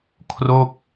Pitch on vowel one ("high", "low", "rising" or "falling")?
falling